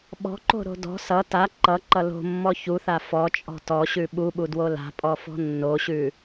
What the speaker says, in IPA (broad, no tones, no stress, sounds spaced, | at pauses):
ɓ ɔ̤ ǃ o̤ ɾ o̤ d ɔ̤ s ʌ t a ǃ ʌ ǃ ʌ l o̤ mː ɔ ç u θ a f ɔ t͡ʃʼ ɔ̤ t ɔ ɕ ʉ ɓ u ɓ u d w o l a̤ pʼ ɔ f ɔ̤ nː o ɕ ʉ